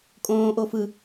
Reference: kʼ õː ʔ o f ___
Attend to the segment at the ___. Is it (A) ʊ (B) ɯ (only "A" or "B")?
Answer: B